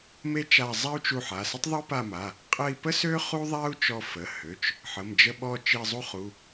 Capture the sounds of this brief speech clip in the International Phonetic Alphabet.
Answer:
me˥t͡ʃa˦˨ zˤa˥u̯t͡ʃu˦˨ħ a˩˧˩sə˥tˤ ðˤø˥pa˦˨ma˩˧˩ | qʼə˦˨i̯pə˥sø˥ χu˥ðˤa˥u̯ t͡ʃɔ˦˨fə˩˧˩hø˩˧˩t͡ʃ | ħə˩˧˩md͡ʒə˦˨ɓɔ˦˨ t͡ʃi˦˨zˤu˥χu˩˧˩

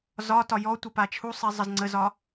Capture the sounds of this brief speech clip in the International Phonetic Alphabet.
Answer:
zɒtɒ jɔtʷəpa t͡ʃʰusˤizˤəz ŋ͡ǀəzɒ

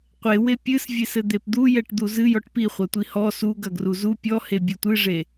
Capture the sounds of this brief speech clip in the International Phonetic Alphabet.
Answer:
qʷewe pʲɨsvʲesɘ d̪epd̪u jɛʈd̪uzɨ jɔʈpiχʷɐtʷi hɔ suɡ ɐɡruzu pʲɔhe bʲɨtʷɨʐe

